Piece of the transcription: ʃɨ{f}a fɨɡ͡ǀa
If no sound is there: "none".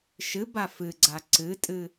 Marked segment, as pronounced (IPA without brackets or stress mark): b